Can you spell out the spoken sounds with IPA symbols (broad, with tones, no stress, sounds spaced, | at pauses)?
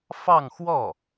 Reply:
f ɑ˥˧ ŋ x w ɔ˥˩